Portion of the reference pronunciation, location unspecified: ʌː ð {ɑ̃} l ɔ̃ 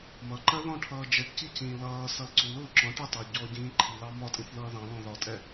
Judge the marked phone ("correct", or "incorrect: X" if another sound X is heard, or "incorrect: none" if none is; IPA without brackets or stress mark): correct